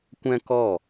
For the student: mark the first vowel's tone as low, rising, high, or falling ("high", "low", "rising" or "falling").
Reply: high